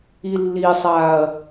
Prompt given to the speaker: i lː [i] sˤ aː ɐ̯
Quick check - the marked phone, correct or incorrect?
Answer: correct